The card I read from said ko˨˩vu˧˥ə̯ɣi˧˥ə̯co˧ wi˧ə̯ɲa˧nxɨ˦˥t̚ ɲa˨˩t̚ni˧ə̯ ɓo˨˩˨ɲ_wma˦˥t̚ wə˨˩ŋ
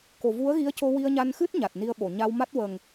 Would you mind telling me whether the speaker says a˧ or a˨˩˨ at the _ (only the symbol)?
a˧